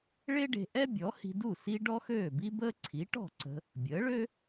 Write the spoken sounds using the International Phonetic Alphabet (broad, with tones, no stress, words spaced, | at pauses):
ɭe˥ɖe̤˧ʔɛ˥ bʲɔ˩˥hi̤˧du˥˩ si˥ ɖɔ˥xøː˥˩bi˥ bəː˥ ǀʰi˩˥ ʈɔ̤˥˩ǀə̤˧ | bʲəː˩˥ɭø˥